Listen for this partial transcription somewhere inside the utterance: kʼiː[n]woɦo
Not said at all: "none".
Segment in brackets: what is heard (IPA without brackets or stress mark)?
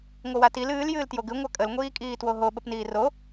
t